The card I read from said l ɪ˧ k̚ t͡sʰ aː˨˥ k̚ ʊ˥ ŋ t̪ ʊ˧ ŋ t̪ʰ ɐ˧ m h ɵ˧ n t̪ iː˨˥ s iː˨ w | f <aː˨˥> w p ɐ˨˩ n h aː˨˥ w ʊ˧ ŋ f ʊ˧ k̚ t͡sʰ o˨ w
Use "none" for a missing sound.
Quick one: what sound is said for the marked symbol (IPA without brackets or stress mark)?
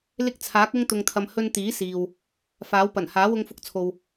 aː˨˥